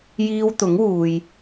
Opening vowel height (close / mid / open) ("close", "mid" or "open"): close